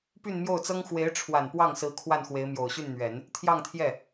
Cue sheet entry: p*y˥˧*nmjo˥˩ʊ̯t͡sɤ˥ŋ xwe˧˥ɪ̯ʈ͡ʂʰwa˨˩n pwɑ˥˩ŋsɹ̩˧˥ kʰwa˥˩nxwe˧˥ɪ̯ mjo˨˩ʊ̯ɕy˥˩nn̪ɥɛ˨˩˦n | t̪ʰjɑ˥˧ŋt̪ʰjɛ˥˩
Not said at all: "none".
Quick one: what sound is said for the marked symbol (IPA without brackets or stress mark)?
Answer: y˥˧